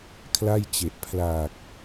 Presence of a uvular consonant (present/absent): absent